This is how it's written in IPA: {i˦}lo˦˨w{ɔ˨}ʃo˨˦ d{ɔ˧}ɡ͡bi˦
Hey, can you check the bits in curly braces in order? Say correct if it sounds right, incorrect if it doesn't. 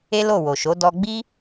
incorrect: e˦, incorrect: o˨, correct

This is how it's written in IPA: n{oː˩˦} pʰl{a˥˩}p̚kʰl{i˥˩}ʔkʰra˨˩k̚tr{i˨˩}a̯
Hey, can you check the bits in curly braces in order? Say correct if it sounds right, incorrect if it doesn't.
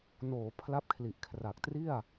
correct, incorrect: a˦˥, incorrect: i˨˩, incorrect: i˥˩

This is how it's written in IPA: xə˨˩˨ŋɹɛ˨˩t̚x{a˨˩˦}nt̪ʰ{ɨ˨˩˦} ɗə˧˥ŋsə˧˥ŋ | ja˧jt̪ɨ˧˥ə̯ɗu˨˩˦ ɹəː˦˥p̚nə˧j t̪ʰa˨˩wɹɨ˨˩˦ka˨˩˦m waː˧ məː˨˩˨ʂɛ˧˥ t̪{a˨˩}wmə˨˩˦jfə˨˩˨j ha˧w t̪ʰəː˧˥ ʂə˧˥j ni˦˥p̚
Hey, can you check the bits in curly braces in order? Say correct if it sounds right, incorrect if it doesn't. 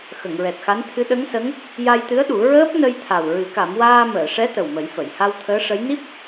incorrect: a˧˥, incorrect: ɨ˧˥, incorrect: ə˨˩

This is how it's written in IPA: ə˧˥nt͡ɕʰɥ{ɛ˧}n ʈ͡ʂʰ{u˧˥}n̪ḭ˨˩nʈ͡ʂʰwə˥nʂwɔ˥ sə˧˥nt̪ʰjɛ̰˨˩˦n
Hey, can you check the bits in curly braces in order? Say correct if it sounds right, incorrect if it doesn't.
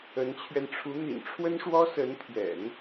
correct, correct

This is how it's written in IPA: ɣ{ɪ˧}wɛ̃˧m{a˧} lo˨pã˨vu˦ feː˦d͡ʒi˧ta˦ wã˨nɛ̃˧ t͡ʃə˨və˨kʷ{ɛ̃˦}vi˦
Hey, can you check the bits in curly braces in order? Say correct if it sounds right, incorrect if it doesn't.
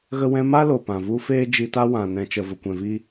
incorrect: ə˧, incorrect: a˦, incorrect: ɛ̃˨

